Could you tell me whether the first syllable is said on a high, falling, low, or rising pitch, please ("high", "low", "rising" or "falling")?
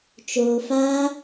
low